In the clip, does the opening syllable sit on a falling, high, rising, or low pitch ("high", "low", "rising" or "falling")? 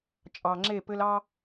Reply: low